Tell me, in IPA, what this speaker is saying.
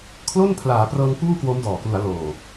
kʰ l o˥˩ n pʰ l aː˩˦ p r ɤː˧ ŋ p uː˥˩ k w o˦˥ m d ɔː˨˩ k l u˩˦ a̯ l oː˨˩

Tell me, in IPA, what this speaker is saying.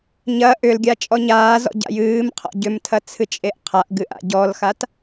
ɲ ɐ ʔ ʏ l ɡʲ a t͡ʃʼ ɔ ɲ aː z ɔ̰ ɟ a̰ j ɨː m qʰ ɔ̰ ɟ ʏ m tʰ ɐ t͡sʰ ɨ t͡ʃʼ e ʔ qʰ a ʔ ɡ ɨ ʔ a̰ ɟ ɔ l x a t

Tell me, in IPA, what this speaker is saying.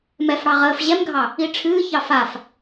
m ɛ f ɽ ɑ ʁ əː f ʑ ɛ m ɡʱ ɑ | i ʈ͡ʂʰ ɨː ç ɑ f a f

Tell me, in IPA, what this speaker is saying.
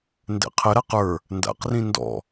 n d ɛ̰ qʰ ə ɾ a q ə˞ | n d a̰ q r ĩ n d ɔ̰

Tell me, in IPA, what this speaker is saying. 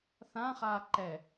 θ ã χ aː ǃ ɛ

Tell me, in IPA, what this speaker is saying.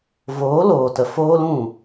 v oː˨˦ l oː˨ t ə˨ f oː˧ l ũ˦˨

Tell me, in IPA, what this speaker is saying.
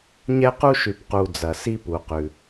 ɲ ɛ˦ q u˦ ʃ ʉ˨ p q u˨ d͡z ɐ˨ s i˦ p u˨ q ʉ˨

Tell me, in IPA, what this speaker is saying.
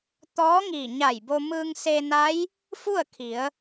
t̪ ɔː˧˥ ŋ iː˧˩ ɲ a˧˩ j b o˧ m ɯː˧ ŋ s e˧ n a˧˥ j | f u˥˨ ə̯ kʰ i˩˧ ə̯

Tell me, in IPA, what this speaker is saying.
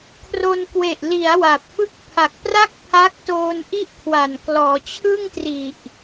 kʰ r o˧ n k w e˨˩ ʔ l i˩˦ a̯ w a˨˩ p̚ f ɯ˥˩ k̚ pʰ a˨˩ k̚ p r a˥˩ k̚ pʰ a˦˥ k̚ t oː˧ n ʔ i˥˩ ʔ kʰ w a˨˩ n k l ɔː˩˦ t͡ɕʰ ɯ˥˩ ŋ t r i˨˩ ʔ

